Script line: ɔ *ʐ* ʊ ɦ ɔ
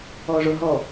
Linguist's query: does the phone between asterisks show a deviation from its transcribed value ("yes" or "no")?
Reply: no